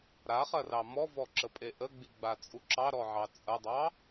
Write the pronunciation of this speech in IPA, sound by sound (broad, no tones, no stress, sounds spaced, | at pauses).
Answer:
ɾ a χ ɐ r ɑ m ɔ v ɔ ǁ ə pʼ e ʔ ə ɡ͡b i ɡ͡b a t͡sʼ u ǁ ɑ ɾ ɔ ʕ ɑ t͡sʼ ɐ dˤ ɑ